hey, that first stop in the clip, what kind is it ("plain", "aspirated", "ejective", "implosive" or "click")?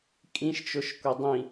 ejective